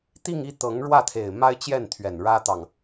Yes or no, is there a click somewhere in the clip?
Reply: no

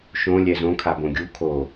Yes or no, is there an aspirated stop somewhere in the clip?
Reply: yes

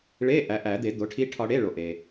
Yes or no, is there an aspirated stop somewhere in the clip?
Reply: yes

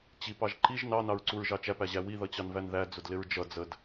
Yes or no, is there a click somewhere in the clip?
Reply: yes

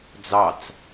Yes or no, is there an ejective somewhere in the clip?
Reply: no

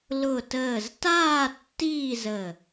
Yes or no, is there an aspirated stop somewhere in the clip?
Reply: no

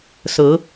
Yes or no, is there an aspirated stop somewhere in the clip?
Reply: no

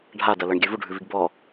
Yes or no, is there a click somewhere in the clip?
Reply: no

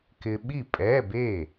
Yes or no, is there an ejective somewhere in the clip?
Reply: yes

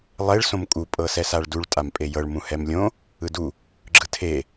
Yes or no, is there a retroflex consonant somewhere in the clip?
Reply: yes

